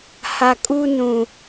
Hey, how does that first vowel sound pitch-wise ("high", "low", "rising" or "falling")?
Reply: low